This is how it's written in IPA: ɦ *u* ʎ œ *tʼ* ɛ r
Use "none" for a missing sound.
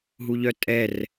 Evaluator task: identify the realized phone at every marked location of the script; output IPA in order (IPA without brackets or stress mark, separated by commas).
u, tʼ